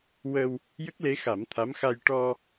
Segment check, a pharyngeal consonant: absent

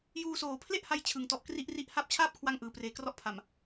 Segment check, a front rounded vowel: absent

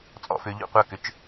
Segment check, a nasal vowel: absent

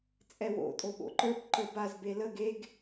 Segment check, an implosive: present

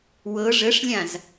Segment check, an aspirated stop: absent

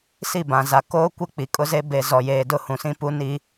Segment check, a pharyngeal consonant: absent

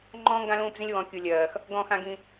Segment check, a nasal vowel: present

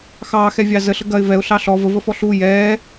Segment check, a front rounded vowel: absent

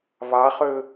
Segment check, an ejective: absent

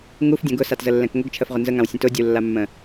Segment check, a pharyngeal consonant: absent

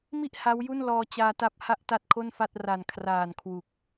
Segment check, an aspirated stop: present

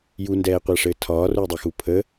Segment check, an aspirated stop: present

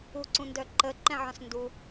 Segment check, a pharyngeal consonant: present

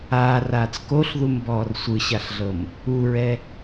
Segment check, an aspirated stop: absent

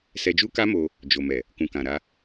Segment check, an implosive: absent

